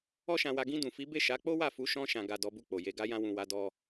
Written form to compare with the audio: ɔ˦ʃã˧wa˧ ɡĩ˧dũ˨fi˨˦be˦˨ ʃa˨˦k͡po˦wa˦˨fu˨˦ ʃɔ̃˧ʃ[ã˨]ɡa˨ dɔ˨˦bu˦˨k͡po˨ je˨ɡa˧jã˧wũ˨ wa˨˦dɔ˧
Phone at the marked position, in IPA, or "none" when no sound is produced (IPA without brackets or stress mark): ã˨